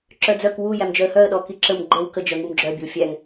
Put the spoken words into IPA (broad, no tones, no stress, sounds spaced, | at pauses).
ǁ œ d͡z œ k w u j æ m d͡ʒ œ ə̯ h œ ə̯ ɗ ɔ k i ǁ ə m ɡ͡ǃ ə w k ə d͡ʒ œ ŋ u m ɡ͡ǁ œ bʲ ə w fʲ æ ŋ